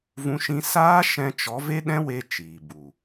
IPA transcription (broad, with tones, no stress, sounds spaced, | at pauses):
v ũ˦ ʃ ĩ˦ s aː˦ ʃ ɛ̃˧ t͡ʃ ɔ˨˦ v e˦ ɗ ɛ̃˦ w e˧ t͡ʃ iː˨ b u˨